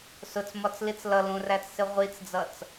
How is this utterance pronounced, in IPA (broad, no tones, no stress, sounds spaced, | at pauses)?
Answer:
s ʊ t͡s m ɒ t͡s l i t͡s l ʌ l ũ r æ t͡s s ɪ ʁʷ i t͡s d͡z ʌ t͡s